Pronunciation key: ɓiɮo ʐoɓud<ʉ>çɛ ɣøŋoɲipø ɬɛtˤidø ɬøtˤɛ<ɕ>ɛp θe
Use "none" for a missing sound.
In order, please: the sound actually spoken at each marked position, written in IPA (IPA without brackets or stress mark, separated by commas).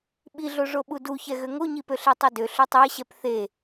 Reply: u, ɕ